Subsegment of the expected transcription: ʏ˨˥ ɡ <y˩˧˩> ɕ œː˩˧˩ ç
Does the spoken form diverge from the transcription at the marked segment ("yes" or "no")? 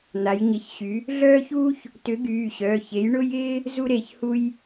yes